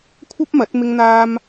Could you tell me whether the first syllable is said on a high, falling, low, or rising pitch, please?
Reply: high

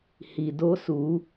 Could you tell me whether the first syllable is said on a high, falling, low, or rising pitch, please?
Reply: low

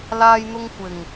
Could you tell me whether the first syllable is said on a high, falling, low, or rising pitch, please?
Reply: high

